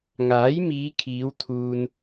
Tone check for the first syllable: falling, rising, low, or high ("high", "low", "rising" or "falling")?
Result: rising